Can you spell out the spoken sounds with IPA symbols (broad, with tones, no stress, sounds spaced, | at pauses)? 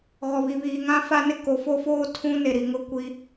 ɣ ɔ˨ β i˨ β iː˨ ŋ ã˦ f a˦ n ɪ˦ k o˨ f o˦ f oː˦ tʰ ũ˦ n e˨ ɾ i˨ ŋ ʊ˦ kʷ i˦